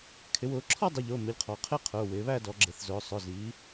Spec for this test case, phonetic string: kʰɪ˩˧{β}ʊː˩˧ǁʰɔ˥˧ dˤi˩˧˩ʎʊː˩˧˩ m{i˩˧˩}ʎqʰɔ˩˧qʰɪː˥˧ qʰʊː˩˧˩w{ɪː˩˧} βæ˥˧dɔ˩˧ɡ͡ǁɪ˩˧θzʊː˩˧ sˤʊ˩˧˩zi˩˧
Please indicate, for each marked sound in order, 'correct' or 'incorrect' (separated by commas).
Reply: incorrect, incorrect, correct